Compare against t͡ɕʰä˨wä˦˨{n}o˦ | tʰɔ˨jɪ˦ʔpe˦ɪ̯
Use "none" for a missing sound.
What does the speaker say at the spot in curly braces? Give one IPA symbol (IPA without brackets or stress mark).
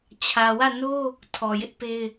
n